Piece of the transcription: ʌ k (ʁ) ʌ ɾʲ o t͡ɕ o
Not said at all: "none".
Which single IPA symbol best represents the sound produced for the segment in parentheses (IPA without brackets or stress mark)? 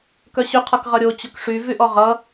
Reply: ʁ